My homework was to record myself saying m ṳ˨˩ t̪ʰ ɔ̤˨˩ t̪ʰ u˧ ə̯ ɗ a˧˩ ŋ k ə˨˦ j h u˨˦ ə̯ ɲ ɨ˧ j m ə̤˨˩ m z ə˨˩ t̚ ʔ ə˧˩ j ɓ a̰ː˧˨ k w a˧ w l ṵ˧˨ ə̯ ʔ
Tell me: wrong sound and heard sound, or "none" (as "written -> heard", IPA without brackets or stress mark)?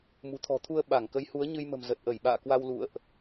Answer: ɗ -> ɓ